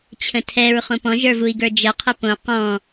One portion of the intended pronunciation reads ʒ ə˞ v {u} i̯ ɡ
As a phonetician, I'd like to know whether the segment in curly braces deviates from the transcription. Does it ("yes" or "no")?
no